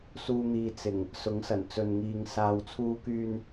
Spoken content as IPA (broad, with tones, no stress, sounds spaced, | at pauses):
s uː˧ n̪ iː˨ t͡s ɪ˨˩ ŋ | s ʊ˨˥ ŋ s ɐ˨˩ n t͡s ɵ˨ n ŋ iː˨ ŋ s aː˨ w t͡sʰ uː˧ k yː˧ n